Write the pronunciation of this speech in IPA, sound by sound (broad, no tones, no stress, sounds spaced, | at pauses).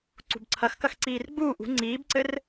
ǀ ṳ b ǀʰ ɐ x k ɐ x ǀ iː r ɡ͡b uː ʔ ṳ ŋ͡ǀ iː b ǀ ɘ r